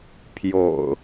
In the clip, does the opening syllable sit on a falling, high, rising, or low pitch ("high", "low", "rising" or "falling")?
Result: low